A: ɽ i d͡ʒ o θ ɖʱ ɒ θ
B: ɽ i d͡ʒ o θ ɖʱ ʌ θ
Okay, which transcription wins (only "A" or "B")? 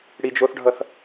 B